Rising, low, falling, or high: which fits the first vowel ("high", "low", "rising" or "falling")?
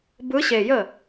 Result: rising